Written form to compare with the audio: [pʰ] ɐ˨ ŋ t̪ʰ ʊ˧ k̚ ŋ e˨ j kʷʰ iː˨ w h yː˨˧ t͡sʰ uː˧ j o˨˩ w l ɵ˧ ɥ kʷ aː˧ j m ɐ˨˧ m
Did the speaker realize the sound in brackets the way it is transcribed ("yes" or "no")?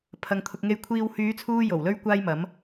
yes